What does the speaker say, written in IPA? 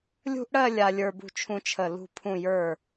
lʲ ṳ˥ ʔ ɽ ɜ˥˧ lʲ a˧ lʲ ə˞˧ b ṳ˧ t͡ʃʰ ũ˧ t͡ʃʰ ə˧˩ l ṳ˧˩ pʰ ũ˧˩ j ə˞˧˩

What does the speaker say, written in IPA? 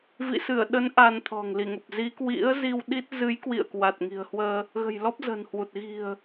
v ḭ˧˨ s ɨ˧˩ ə̯ ɗ ə˨˦ n ʔ a˧ n t̪ʰ ɔ̤˨˩ ŋ l i˧˩ ŋ ə˨˩ p̚ z i˨˦ k w ḭ˧˥ ə̯ z i˧ w ɗ i˦˥ t̚ z ɨ˨˦ j k w ḭ˧˨ ə̯ k w a˨˩ t̚ ŋ i̤˨˩ ə̯ h w əː˧ | ɣ ə̤˨˩ j l ɔ˦˥ p̚ z ə̤˨˩ n h w u˨˩ t̚ ɣ i̤˨˩ ə̯

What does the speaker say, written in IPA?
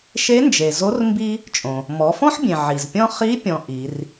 ʃ e˧˥ n d͡ʒ e˩ z o˧˥ r m b i˥ | t͡ʃʼ õ˩ | m ɔ˩˧ f ɔ̃˥ ħ bʲ ẽ˩ ʕ i˩ z pʲ ɔ̃˥ χ i˧˥ pʲ ɔ̃˧ ʔ i˩˧ r

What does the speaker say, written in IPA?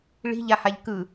ɭ i̤ ʎ a h a ʎ k ɯ

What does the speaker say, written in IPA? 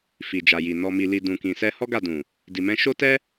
f i˨ d͡ʒ a˨ j i˨ n ɔ˨ m i˨ l i˨ d ũ˨ k ĩ˨ s ɛ˧ h ɔ˦ ɡ a˦˨ d ũ˨ | d i˨ m ɛ̃˧ ʃ o˦ t ɛ˦

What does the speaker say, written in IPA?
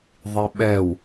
ðˤ i ɓ ɛ w

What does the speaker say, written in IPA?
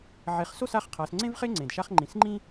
ʕ e˩˧ χ s o˥˨ s a˥˨ χ qʰ a˩˧ s ŋ͡ǀ ẽ˥ v χ e˥ ŋ͡ǀ ẽ˩ d ʃ a˥ χ ŋ͡ǃ ĩ˩˧ s ŋ͡ǃ ĩ˥

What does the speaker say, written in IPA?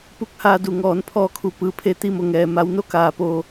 p u˧ k̚ h aː˧ d u˧˩ ŋ ɔː˩˧ n pʰ ɔː˧˩ kʰ u˩ p ɯː˩ pʰ e˧˩ t̪ i˥˨ m o˩˧ ŋ ɛː˩ m a˩˧ w n o˧˥ k aː˩ p oː˧˩

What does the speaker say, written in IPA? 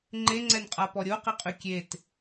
ŋ͡ǃ e ŋ͡ǀ ɛ n qʼ a p ɔ ɾʲ o q i qʼ y kʲ e t

